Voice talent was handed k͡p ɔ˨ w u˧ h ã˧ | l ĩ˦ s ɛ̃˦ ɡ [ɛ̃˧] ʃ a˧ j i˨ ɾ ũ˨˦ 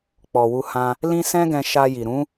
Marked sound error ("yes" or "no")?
no